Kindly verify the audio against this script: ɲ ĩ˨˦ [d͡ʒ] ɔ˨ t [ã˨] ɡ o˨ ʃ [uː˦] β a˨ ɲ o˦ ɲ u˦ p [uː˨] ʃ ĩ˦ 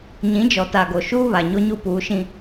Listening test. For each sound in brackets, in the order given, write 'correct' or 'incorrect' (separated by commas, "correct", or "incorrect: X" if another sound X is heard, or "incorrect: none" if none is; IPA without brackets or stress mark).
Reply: correct, incorrect: a˨, correct, incorrect: uː˨˦